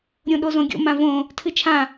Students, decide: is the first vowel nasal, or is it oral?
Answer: nasal